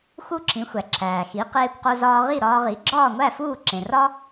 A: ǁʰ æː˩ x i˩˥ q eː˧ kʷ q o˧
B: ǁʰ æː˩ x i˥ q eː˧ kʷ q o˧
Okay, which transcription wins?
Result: A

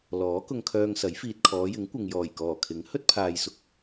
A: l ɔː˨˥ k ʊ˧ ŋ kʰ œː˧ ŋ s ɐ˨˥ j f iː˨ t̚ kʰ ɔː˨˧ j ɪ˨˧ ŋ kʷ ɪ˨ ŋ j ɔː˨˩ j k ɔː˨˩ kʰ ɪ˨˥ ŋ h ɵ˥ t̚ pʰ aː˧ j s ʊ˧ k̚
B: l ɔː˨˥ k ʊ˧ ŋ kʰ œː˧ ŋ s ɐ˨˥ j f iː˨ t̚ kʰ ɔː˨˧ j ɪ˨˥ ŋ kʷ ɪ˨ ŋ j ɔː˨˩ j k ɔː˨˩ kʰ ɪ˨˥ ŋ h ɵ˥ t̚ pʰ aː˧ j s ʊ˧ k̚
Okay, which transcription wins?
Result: B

